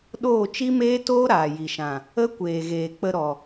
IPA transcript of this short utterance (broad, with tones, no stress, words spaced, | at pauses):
ɗoː˦˨t͡ʃi˦meː˦toː˦ ɾaː˨ji˨ʃã˨ | ə˦ kʷeː˨ɣeː˨ k͡pə˧ɾɔ˨